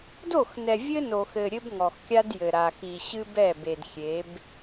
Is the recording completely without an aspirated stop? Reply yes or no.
yes